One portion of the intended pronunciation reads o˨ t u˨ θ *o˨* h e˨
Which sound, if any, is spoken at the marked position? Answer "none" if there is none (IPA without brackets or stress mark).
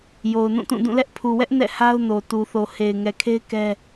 o˨